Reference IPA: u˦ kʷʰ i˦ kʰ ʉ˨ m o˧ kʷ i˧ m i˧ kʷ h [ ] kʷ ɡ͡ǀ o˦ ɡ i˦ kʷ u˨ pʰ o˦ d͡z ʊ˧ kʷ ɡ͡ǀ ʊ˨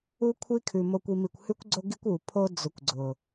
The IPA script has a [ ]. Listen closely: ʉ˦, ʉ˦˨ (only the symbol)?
ʉ˦